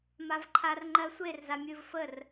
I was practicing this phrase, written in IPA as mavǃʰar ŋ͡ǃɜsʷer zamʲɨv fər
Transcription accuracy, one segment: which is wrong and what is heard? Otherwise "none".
none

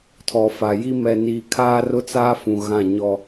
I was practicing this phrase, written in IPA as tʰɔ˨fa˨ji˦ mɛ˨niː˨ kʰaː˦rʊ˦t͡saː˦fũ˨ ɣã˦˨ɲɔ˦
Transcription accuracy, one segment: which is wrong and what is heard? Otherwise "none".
none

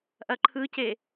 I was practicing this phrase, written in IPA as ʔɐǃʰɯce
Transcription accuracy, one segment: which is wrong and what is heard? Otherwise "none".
none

